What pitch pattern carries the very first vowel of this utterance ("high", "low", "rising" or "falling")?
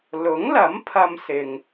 rising